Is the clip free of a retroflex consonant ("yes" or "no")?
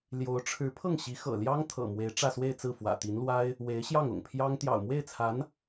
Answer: no